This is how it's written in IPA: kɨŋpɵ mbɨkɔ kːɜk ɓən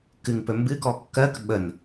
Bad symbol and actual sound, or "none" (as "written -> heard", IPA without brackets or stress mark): none